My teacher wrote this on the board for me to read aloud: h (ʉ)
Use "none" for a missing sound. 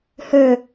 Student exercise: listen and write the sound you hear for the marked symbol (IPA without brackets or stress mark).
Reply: ø